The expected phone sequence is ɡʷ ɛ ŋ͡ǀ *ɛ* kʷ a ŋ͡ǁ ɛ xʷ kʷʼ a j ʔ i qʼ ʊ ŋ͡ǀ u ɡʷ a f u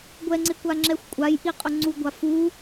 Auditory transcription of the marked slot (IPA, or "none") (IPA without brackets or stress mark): ɪ